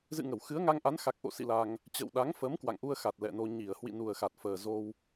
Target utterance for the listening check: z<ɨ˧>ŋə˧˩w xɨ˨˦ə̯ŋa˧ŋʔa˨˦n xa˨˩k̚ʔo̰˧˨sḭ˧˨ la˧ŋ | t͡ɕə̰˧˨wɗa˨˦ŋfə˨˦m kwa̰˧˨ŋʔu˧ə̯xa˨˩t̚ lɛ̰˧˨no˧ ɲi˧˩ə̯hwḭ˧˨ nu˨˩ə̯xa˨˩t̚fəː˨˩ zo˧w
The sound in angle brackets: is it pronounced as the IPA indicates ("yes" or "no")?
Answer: no